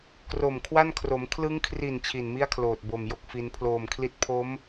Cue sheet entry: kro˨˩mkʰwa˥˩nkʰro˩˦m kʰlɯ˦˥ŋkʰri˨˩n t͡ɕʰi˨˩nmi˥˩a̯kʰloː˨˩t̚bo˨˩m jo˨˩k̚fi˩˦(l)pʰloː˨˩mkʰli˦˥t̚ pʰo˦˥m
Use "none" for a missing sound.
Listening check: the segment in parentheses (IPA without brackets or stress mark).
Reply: n